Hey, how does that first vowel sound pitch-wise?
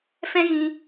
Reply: high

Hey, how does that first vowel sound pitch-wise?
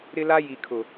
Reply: high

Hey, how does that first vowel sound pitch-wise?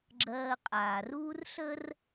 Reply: low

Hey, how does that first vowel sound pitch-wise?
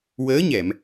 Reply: rising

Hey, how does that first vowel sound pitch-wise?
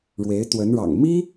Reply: rising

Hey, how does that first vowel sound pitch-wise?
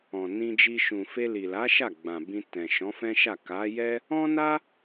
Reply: low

